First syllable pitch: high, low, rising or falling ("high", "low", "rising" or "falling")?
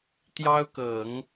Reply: high